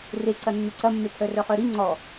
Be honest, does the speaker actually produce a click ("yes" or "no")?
yes